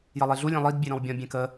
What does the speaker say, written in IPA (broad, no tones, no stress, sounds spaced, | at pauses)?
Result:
j ʌ lˠ e ɮ u lʲ ẽ lˠ i d bʲ e ɾ ɔ̃ w bʲ ɔ̃ bʲ ẽ k ə